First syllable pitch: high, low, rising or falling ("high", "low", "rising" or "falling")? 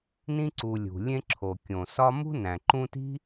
high